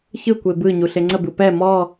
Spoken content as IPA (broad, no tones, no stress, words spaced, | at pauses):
çɯkʷe bɯ ɲuɬeŋ͡ǀəbɯ pɛ mɔ